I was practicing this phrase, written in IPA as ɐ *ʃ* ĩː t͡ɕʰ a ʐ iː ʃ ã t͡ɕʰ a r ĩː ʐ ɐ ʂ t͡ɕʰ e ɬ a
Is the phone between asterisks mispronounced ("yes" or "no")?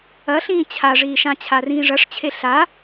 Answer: yes